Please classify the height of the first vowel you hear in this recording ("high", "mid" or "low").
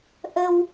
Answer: mid